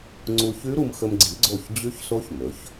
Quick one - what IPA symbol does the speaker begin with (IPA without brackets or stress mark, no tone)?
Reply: ŋ͡ǀ